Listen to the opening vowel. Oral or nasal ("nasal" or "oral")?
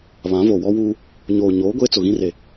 nasal